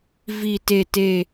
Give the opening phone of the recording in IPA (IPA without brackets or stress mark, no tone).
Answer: v